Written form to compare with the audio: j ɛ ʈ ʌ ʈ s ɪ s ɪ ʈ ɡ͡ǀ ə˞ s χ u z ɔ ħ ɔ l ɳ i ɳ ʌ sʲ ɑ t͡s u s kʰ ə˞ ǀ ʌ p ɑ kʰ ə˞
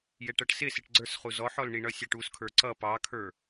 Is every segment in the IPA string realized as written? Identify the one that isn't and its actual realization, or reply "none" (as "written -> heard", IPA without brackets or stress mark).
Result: t͡s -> ʈ